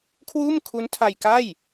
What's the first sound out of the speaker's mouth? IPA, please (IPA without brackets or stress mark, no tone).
kʰ